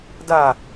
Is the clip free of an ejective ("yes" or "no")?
yes